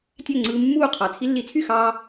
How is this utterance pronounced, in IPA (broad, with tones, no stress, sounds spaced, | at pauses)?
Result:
tʲ æ˥˩ ŋ͡ǀ ɯː˧ mː uː˥˩ qʰ ɑ˩ t͡sʰ i˧ lː i˩˥ t͡sʰ y˥˩ x ɑː˧